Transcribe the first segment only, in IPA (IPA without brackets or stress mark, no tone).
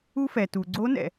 u